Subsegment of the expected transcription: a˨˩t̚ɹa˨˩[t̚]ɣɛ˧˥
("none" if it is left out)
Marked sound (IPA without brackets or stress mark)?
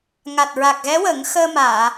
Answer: k̚